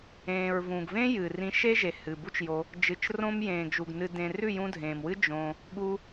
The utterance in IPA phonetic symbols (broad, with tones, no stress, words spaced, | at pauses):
ẽː˨ɹvũ˨ɡ vẽ˦ jɨ˨rĩ˧ ʃe˦ʒe˨ hɨ˨bu˦t͡ʃjo˧ | d͡ʒɨ˨t͡ʃrõ˧m jẽː˨ɡ ʒu˨ɡ nɨ˨dẽ˨ rʉ˦˨jũ˧dʱẽː˨mwɨ˦ d͡ʒõ˧ | ɠu˧